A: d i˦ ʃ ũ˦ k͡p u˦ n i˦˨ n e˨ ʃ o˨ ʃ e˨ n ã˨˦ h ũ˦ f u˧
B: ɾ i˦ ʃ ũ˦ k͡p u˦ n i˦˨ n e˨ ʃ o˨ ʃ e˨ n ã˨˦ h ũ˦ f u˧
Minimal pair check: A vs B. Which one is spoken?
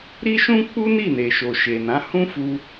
B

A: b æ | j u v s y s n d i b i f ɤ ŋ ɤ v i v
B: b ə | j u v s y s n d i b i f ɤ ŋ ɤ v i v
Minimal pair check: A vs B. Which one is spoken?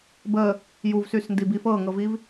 B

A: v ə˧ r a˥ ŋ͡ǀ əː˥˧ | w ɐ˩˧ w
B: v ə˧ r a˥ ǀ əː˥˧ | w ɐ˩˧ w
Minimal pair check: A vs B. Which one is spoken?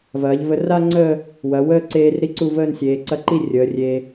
A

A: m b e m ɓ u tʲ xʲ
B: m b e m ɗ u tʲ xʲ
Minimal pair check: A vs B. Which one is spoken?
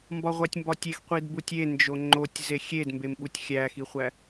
A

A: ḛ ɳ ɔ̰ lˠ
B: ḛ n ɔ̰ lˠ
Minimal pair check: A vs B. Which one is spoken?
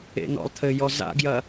B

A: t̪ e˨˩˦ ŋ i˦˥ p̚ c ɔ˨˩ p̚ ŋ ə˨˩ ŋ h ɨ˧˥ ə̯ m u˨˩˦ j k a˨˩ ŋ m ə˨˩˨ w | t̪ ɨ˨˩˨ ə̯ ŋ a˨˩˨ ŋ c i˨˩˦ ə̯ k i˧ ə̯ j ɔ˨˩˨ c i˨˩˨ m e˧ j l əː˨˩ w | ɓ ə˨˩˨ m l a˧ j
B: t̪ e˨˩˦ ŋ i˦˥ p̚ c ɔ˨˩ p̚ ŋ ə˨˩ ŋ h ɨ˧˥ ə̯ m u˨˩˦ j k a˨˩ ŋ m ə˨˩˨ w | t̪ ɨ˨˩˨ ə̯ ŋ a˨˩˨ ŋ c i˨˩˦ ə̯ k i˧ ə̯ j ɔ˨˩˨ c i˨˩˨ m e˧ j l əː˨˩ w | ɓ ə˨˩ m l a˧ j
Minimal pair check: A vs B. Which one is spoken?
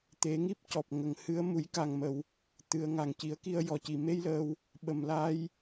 B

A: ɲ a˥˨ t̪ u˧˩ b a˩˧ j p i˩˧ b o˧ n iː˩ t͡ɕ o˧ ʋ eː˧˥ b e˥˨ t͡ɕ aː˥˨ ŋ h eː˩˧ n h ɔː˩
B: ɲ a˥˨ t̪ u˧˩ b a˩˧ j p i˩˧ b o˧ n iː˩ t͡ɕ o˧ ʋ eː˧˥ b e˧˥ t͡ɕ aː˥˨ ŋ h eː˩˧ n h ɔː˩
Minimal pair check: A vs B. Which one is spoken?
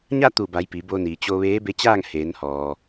B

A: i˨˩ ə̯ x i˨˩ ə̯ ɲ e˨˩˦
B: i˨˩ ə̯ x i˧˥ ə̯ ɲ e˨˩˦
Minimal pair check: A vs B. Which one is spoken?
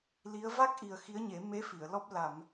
B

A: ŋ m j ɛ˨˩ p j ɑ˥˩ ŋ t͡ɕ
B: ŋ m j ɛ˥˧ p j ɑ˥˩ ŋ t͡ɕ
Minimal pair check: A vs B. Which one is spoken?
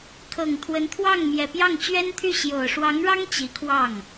A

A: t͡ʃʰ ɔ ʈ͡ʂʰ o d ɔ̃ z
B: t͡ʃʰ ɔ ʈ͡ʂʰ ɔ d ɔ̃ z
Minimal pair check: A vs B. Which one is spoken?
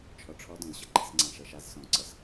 B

